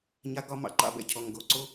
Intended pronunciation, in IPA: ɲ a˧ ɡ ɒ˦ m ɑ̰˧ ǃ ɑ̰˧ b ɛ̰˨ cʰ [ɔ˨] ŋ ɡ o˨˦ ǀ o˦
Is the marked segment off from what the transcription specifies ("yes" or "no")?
no